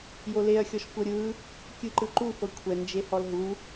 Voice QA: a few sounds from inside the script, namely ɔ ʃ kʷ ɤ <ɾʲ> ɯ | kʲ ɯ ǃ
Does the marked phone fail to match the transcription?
no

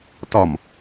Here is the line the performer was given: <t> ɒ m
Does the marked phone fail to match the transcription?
no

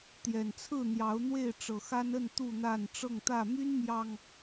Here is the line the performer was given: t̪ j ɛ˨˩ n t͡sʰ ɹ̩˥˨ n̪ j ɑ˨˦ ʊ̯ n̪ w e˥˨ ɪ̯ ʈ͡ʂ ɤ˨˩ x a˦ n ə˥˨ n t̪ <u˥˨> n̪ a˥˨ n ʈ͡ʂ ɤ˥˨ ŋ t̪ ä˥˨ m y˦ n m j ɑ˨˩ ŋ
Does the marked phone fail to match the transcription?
no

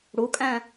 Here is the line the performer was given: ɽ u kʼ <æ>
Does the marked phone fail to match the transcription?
yes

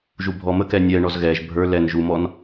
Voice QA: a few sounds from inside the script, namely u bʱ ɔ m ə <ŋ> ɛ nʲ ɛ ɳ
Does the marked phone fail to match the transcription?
yes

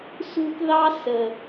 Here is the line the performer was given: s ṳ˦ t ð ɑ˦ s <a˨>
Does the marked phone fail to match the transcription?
yes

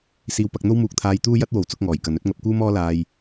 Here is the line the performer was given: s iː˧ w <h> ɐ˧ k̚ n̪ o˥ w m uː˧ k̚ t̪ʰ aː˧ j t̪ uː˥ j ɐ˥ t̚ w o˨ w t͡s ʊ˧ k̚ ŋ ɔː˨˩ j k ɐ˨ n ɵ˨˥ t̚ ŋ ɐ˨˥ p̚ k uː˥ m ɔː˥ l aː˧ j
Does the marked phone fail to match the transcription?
yes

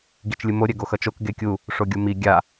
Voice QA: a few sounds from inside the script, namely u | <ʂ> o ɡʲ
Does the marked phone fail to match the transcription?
no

